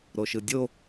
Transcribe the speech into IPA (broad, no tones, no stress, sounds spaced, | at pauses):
ɾ o ʃ ɯ dʲ o